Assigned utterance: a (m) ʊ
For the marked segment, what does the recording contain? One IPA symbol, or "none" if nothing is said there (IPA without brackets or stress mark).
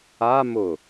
m